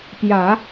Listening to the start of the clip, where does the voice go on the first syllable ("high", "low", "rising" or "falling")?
low